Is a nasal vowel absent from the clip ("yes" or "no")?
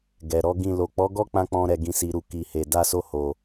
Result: no